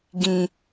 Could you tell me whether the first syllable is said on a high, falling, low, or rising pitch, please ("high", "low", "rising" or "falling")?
low